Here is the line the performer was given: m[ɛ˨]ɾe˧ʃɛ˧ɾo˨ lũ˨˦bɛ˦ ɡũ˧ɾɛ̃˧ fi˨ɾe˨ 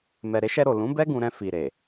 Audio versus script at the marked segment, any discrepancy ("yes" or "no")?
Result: no